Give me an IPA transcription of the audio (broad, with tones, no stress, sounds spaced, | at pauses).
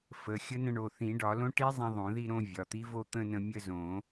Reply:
f ə˩˧˩ xʲ ə˦˥ n ə̃˥˧ ɳ o˩˧˩ θ ĩ˨˩˦ ɖ ɒ˨˩˦ l õ˦˥ ʈ i˦˥ zˤ ĩ˧ ðˤ õ˨˩˦ ð i˥˧ ɾ õ˥˧ vʲ ɒ˩˧˩ t̪ i˦˥ v o˥˧ t̪ ə̃˥˧ n ə̃˧ mʲ ə˥˧ z õ˨˩˦